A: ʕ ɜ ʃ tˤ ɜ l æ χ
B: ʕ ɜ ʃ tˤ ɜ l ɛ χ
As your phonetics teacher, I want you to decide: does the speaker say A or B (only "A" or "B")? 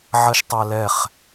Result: B